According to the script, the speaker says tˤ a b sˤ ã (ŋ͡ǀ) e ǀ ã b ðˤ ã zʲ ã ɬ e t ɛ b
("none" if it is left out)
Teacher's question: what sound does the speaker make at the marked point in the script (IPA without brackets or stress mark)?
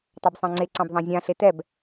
ŋ͡ǀ